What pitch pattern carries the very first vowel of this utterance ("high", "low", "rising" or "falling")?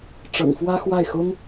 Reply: low